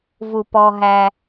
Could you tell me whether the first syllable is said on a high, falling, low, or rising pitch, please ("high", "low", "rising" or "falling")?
low